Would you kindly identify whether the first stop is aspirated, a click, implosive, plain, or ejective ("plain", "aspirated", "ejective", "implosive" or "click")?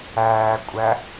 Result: ejective